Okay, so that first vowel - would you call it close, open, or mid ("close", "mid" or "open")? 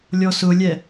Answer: mid